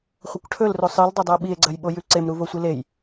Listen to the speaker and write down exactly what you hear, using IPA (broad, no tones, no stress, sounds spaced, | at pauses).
χʷ ɐ kʷ ʈʰ ɵ l r o sˤ ɨ l dˤ o dˤ ɵ o̯ ɓ i e̯ ɡ͡ǀ ɐ j ɓ o j ʉ ǀ e m ɾ u v o sʷ i l e j